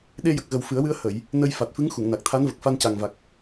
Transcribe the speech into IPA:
ɗ e˧ j ə˨˩ k̚ ɣ ə˨˩ w f ɨ˨˩˦ ə̯ w ɨ˧ ə̯ h ə˨˩˨ j | n ə˧ j f a˨˩ t̚ f ɨ˧˥ ŋ x u˨˩˨ ŋ n a˨˩ k̚ t̪ʰ a˧˥ n v ə˨˩ k̚ f a˧ n c a˨˩ ŋ v a˨˩ k̚

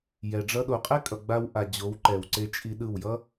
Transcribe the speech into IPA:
j ɛ˨ ɖ͡ʐ ʌ˧ ɗ o˨ qʼ ɛ˦ kʼ ʌ˨ ɡ͡b a˧ w ʔ a˨ d͡ʑ o˨˦ w ǃ ɛ˨ w ǀ e˧ t͡ʃʼ i˧ ɗ ɯ˦˨ w j ʌ˦

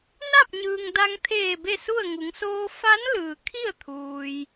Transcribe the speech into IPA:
n a˥˨ p̚ ɲ ɯː˩ ŋ d a˧ ŋ t̪ʰ eː˧˩ b e˥˨ s u˥˨ ə̯ ŋ u˩˧ ŋ s oː˧ f a˧˥ n l ɯː˩ kʰ i˥˨ ə̯ t̪ʰ uː˩ j

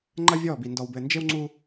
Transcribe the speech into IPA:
ŋ͡ǃ ɐ˦ vʲ ɔ˦˨ b i˨ n d ɔ˨ w b ɘ˨ n d͡ʒ e˦ w ŋ͡ǀ u˦

